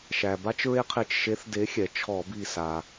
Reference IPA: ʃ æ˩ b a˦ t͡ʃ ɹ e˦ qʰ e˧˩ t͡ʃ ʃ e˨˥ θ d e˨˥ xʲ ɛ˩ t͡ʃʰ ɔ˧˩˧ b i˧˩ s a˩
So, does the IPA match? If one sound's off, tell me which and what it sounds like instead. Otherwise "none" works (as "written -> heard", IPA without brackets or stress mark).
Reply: none